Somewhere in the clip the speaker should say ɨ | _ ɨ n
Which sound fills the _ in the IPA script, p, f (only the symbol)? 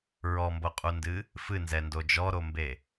f